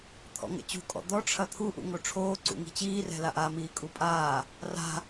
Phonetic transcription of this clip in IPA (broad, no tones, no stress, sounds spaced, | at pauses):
t̪ʰ ɔ̰ ŋ ɛ̰ t͡ɕ ṳ kʼ ɔ̰ d̪ ɔ ʈ͡ʂʰ ɐ t̪ʰ u ʔ ṵ ŋ o ʈ͡ʂʰ oː ǀ ṵ ŋ i̤ t͡ɕ iː r ɛ̤ l a ʔ a m iː kʼ u pʼ aː | r a̤